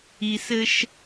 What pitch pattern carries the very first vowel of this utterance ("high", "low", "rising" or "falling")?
low